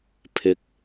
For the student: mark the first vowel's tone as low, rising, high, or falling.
low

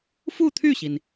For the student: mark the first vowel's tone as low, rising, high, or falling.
falling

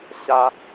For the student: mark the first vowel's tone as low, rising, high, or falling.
high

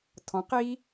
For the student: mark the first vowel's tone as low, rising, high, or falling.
rising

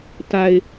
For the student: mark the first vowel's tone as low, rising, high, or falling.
low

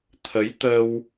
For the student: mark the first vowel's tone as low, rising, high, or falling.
rising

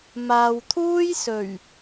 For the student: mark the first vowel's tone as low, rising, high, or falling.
low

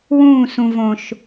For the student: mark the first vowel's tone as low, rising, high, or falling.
falling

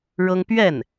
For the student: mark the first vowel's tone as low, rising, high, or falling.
high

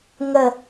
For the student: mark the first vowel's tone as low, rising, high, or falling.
low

